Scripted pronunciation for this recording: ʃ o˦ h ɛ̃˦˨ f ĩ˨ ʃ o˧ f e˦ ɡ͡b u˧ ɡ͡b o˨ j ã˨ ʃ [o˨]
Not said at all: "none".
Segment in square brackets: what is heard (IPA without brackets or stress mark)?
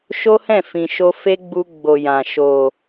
o˨